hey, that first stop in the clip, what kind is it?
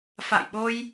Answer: implosive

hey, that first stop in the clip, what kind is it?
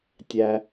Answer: plain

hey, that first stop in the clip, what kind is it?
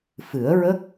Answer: plain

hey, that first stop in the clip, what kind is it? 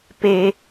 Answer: plain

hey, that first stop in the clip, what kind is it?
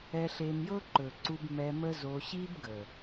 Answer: click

